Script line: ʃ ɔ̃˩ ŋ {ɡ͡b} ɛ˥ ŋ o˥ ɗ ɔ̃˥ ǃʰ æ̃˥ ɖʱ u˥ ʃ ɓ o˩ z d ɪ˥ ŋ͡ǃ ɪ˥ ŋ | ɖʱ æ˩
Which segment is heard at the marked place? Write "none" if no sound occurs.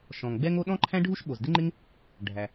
ɡ͡b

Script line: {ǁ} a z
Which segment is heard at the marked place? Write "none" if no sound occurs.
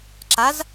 ǁ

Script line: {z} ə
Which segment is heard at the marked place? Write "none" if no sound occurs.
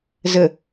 z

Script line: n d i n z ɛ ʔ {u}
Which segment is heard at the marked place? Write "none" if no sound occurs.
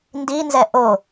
o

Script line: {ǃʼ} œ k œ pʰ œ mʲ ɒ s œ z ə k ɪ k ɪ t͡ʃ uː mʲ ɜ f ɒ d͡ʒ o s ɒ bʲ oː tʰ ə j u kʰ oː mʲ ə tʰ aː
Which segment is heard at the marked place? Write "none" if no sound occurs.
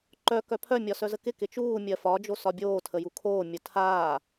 ǃ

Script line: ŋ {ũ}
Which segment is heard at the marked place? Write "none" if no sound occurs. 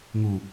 u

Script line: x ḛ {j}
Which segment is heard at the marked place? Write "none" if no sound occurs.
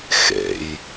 j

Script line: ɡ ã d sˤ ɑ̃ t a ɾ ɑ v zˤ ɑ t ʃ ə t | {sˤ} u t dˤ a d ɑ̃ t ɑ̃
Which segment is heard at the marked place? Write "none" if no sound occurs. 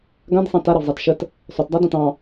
sˤ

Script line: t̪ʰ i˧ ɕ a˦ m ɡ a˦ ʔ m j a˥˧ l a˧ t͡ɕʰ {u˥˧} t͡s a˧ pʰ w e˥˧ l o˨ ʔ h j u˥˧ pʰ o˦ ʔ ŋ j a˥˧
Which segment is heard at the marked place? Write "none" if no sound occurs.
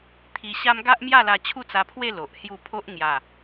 u˥˧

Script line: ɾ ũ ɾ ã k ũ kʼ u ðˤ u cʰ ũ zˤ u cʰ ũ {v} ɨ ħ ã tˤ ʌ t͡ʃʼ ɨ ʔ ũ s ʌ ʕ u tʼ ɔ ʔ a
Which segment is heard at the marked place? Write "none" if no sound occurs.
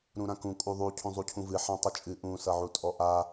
v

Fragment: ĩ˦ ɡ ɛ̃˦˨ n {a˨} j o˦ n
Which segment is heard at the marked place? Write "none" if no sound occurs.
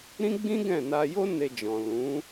a˧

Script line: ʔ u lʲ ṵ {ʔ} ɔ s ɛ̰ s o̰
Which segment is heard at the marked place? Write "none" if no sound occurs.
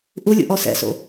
ʔ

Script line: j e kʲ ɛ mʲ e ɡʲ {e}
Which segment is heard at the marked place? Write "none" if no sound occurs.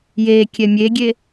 e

